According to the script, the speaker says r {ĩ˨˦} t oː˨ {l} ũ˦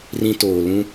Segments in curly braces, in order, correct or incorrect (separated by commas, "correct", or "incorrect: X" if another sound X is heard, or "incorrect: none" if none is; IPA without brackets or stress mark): incorrect: ĩ˦, correct